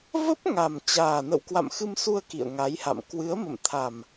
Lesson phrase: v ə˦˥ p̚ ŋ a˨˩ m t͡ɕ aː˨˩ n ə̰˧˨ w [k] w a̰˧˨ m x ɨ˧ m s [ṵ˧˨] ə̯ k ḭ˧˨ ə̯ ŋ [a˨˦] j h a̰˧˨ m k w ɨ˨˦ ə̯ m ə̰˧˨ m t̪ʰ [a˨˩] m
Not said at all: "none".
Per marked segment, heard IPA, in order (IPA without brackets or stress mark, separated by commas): k, u˧, a˨˦, a˨˩